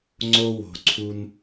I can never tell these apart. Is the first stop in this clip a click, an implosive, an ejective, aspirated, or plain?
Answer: click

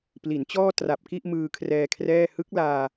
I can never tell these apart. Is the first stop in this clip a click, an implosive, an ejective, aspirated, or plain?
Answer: plain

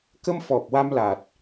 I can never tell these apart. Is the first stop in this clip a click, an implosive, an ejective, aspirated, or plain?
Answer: plain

